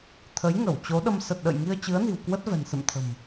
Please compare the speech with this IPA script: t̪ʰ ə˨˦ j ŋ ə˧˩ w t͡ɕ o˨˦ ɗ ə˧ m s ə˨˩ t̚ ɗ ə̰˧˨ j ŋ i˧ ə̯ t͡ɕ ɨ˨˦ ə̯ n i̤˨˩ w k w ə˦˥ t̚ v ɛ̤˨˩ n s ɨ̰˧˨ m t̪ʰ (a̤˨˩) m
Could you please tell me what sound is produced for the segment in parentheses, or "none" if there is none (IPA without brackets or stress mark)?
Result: ə̤˨˩